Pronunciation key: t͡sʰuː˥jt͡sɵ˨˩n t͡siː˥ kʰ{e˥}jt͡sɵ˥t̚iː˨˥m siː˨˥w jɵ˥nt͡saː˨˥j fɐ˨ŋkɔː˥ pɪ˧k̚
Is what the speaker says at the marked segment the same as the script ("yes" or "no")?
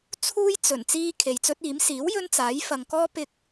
no